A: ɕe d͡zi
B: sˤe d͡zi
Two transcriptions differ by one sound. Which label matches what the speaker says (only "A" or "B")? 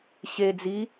A